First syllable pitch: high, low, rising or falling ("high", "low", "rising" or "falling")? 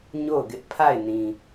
falling